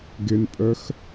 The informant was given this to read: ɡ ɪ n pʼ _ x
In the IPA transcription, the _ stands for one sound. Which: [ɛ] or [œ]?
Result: œ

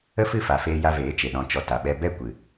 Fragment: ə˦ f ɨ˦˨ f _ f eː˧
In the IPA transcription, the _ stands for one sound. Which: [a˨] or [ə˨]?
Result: a˨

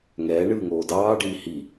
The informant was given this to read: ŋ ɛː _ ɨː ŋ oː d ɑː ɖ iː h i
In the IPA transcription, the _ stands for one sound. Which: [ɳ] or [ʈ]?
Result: ɳ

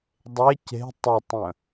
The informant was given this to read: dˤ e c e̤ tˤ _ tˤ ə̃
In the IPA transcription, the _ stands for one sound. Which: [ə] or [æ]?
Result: ə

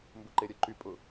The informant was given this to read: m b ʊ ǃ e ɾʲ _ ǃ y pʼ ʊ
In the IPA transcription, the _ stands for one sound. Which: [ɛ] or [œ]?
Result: œ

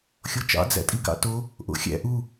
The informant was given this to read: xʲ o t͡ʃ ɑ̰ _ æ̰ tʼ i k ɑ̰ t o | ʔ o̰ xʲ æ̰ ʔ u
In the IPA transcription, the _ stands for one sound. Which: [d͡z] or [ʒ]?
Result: d͡z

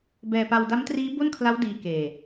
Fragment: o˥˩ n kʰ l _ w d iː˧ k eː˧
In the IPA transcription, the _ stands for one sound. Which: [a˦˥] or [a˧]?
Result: a˦˥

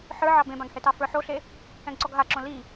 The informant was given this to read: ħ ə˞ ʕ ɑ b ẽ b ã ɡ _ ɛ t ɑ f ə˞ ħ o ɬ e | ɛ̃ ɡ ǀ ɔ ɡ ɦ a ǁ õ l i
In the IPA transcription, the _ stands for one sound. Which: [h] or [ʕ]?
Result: h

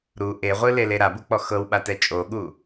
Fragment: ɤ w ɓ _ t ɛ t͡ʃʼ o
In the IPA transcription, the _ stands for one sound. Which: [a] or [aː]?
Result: a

